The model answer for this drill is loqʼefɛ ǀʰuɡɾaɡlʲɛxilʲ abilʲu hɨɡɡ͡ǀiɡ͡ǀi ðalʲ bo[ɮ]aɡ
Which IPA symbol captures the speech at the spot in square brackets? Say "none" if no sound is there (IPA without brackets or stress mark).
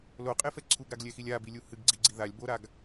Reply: ɾ